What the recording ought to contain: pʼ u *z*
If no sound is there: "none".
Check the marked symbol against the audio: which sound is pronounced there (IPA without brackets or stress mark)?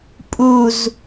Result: z